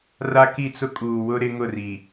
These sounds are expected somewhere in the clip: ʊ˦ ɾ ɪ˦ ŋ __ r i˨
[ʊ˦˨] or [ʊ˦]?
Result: ʊ˦˨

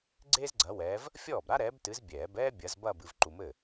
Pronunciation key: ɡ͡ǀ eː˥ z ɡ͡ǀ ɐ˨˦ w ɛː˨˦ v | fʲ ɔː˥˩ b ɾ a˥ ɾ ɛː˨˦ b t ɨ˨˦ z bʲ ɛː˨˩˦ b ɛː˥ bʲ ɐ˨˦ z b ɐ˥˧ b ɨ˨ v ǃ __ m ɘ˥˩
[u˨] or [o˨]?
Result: u˨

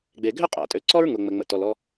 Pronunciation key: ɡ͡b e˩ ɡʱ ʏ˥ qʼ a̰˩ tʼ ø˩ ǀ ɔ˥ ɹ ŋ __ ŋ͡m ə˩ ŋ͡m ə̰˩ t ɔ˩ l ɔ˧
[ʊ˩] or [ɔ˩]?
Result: ʊ˩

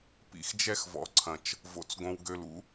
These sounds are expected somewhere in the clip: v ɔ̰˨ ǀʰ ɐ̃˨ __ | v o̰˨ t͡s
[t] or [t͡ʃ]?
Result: t͡ʃ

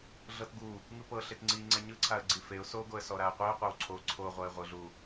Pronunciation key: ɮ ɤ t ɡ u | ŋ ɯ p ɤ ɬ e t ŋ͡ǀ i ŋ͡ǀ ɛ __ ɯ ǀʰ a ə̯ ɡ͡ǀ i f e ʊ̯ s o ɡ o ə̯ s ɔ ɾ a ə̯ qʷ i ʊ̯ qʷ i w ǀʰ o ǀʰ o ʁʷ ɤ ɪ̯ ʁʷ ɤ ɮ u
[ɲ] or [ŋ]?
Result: ɲ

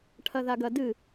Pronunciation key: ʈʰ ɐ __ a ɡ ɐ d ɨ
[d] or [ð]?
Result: ð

